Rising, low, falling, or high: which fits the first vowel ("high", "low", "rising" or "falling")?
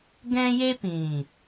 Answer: high